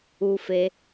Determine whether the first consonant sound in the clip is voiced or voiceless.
voiceless